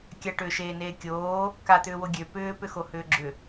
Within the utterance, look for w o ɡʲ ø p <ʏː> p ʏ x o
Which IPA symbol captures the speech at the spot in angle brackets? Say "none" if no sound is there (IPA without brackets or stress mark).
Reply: ʏː